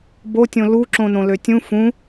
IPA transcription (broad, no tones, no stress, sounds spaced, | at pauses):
b o tʲ õ l u ǁ õ n õ l ø tʲ ũ f ũ